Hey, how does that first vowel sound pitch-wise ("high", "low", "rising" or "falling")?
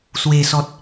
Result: low